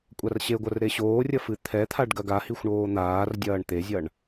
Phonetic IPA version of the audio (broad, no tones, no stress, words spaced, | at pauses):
kʷʼarɕeɡʷɐr ɾeɕoːrʲɐ fɨt̪ʰɛt̪ʰaɖ ɡɐɡahixʷ ɳoːn̪aːrdʲɐːɳ t̪ezʲɐɳ